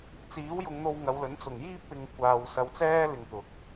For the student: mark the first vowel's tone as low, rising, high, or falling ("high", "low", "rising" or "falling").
rising